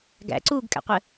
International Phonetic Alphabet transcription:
ɡæ̰ ǀuɡ kʼæ̰qʷɘ

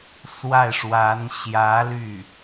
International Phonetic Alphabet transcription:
swa˥˩ɪ̯ʂwa˧˥n ɕjä˧˥ ly˥˩

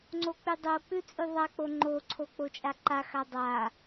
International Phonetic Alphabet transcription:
ŋ͡ǀok͡pʉdˤok͡pʉ t͡sʼʉðˤak͡po ŋ͡ǃoǀʰo k͡pot͡ʃʼaǃaxa dˤa

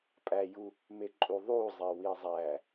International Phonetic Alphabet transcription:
pʼæju | meǃʼuðˤuzˤe wizˤæ

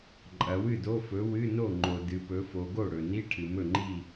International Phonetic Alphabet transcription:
ǃʼɐ˩˧wɨ˥˩do˧˥˧fɵ˨˥ wɨ˧˥˧no˥˩ ŋ͡ǃo˩ dɨ˩˧pɵ˨˥fo˩˧ ɡo˥˩ɽɵ˩ni˧˥˧ ʈʰɨ˩mɵ˥˩ŋ͡ǃi˥˩

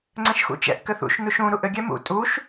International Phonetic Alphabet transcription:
ŋ͡ǀɛ̃ʃxṵt͡ʃɛ̰ʔ kɘθṵʃ nuʃũ ɾuʔɘ ɡʲɛmṵ tʼuʃ

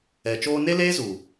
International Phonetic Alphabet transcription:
ɛ˨t͡ʃoː˦ ne˦leː˦zu˨

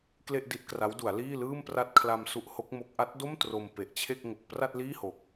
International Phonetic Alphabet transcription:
kle˥˩ʔdi˦˥t̚kra˦˥wdu˩˦a̯ liː˥˩lɯː˥˩mpra˥˩t̚ kʰla˧m su˦˥ʔho˦˥k̚mo˦˥k̚ ʔa˦˥t̚do˥˩m tro˧mpe˨˩ʔt͡ɕʰe˥˩k̚ ŋo˨˩k̚ pra˥˩t̚liː˥˩ho˨˩k̚

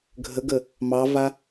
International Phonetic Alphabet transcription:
ɡʱəɡə | mɑva

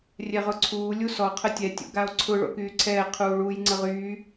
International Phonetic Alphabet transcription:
rʲɛʁʊǀʰuː lʲusɔ qʰətʲɛ tʲo̰ɡao̯ǀʰʊ ɭo̰kyːǀʰɛː qʰuːɭuːjŋ͡ǀəʁyː

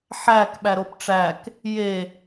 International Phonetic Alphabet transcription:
ħæk ɓæɾopʈ͡ʂæk | je

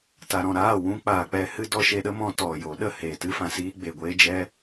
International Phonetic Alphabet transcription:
ta˨ɾɔ̃˨ɾaː˦˨ wũ˦ k͡paː˨k͡pɛ˧hɨ˦ dɔ˧ʃe˧ɗə˦mɔ̃˧ tɔ˨ jo˨˦ ɗə˦heː˨ tɨ˦fã˧siː˦ ɡ͡be˨ ɡʷeː˦d͡ʒɛ˦

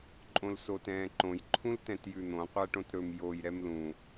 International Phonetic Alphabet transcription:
ǃʼõlsotɛ̃ːǃõj ǃʰũltɛ̃tjʉn̪õ qʷæʈõtɾɵm joj ɾɛmlũ

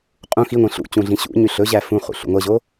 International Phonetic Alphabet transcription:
qʼũ xiŋʷĩ ɬṵt͡ɕũ ɮĩɕṵɲy ɬɵʑæ fũχṵ ɬṵŋʷɛʑo

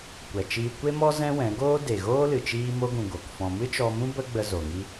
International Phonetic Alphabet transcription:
kʷɛ˨t͡ʃiː˧ kʷe˦mɔ˦ zɛ̃˦wɛ̃˨˦ ɡoː˦ de˨ɣoː˦lɨ˨ t͡ʃiː˧mo˧ɡũ˨ ɡo˨kfɔ̃˧ mɨ˦t͡ʃɔ˧mũ˦ bə˦ɡ͡bə˧ zo˨ŋi˦

